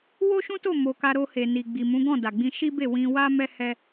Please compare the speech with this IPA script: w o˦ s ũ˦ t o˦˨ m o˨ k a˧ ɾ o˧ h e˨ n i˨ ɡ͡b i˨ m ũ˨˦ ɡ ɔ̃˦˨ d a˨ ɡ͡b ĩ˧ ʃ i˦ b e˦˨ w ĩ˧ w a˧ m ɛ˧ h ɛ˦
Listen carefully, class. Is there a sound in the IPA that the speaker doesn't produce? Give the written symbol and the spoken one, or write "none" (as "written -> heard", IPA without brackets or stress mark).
s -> ʃ